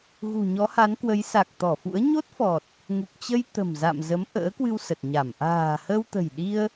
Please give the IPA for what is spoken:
ɣ ṳ˨˩ ɲ ɔ˨˦ h a˨˦ n k w ə˨˦ j s a˨˩ k̚ t̪ ɔ˧˩ f ṵ˧˥ ə̯ ɲ o˦˥ t̚ f ɔ˨˩ t̚ | ŋ u˨˩ k̚ t͡ɕ ə˧ j t̪ ə̤˨˩ m z a̰˧˨ m z ə˨˦ m ʔ ə̰ː˧˥ k w ɨ˧ w s ə˨˩ t̚ ɲ a˧˩ m ʔ a̤ː˨˩ h ə˧ w t̪ ə̤˨˩ j ɗ i˧ ə̯

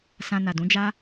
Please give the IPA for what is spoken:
s ã˧ n a˨ d ũ˨˦ d͡ʒ a˦

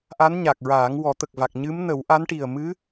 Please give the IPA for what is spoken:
ʔ a˧˥ n ɲ a˨˩ k̚ ɹ aː˨˩˦ ŋ w ɔ˨˩˦ t̪ ə˨˩ k̚ v a˨˩ k̚ ɲ ɨ˧˥ m n ə˨˩˦ w ʔ a˧˥ n ʈ i˨˩ ə̯ m ɨ˧˥

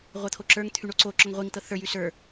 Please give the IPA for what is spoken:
ʁʷ ɤ t̪ʰ o ǁ ə˞ ŋ t̪ʰ y ɳ o ǀ o ǁ ɔ ŋ ʁʷ i ŋ t̪ ɤ θ ə˞ j y s ə˞

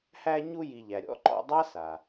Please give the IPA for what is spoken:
h æ˦ ɲ u˦ j i˨ ʎ æ˩ ɾʲ ɔ̰˥ ǃ ɔ̰˦ dˤ a˥ s a˩

